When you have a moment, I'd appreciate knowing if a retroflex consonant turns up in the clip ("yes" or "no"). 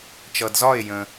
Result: no